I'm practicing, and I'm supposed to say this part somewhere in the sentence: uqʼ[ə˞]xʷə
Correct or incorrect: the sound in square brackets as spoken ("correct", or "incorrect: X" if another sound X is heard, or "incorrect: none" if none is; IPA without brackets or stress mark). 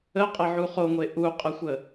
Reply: incorrect: ə